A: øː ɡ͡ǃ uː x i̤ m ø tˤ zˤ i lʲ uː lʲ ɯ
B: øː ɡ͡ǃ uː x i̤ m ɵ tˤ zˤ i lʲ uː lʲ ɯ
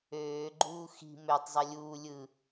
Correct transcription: A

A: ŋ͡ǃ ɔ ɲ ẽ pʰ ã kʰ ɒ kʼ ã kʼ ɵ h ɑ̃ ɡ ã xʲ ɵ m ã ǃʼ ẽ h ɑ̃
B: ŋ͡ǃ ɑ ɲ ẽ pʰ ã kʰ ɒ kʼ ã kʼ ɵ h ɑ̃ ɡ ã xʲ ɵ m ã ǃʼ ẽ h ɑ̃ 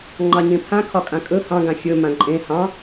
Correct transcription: B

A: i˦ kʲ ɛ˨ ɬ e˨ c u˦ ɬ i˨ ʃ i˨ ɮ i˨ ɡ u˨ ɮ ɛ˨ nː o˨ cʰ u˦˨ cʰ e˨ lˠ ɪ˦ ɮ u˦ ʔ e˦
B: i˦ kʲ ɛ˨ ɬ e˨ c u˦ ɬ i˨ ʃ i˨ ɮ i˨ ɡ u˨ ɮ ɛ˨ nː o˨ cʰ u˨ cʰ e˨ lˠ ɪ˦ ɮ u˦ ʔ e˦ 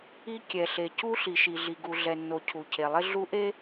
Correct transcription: B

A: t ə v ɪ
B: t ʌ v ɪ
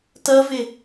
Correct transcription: B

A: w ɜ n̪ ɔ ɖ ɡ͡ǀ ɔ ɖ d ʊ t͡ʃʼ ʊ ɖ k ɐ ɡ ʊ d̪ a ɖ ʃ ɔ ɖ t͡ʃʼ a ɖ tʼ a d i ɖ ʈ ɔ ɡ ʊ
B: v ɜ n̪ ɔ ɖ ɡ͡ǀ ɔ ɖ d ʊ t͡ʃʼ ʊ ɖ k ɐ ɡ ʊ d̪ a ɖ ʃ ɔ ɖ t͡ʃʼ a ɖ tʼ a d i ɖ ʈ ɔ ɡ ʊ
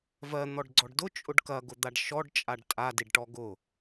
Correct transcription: B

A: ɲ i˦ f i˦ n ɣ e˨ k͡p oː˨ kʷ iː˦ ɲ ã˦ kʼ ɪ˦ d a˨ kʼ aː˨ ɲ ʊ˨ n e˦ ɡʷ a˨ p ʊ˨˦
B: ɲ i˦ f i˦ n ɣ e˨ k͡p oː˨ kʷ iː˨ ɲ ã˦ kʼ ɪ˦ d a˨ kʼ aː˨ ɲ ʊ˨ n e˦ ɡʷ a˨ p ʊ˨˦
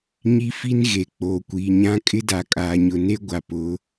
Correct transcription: B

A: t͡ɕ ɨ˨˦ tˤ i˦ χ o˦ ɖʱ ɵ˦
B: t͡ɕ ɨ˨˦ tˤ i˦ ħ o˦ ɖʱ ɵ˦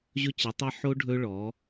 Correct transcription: B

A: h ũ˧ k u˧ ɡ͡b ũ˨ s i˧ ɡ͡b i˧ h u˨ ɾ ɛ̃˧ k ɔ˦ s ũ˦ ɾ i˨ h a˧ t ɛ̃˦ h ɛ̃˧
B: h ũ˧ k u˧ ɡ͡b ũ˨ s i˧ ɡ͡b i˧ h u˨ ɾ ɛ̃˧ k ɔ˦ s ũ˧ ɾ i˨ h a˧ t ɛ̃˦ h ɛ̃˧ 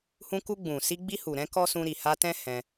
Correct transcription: B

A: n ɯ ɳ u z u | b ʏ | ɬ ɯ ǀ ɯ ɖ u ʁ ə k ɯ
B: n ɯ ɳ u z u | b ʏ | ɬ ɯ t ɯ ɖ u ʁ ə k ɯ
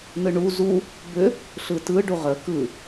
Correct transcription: B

